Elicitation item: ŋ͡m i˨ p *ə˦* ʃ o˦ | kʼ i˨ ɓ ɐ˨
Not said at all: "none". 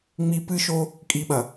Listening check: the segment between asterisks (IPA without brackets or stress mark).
ɨ˦